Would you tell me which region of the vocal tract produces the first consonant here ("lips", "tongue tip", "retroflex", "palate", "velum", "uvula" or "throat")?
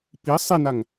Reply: lips